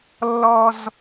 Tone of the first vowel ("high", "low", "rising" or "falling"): high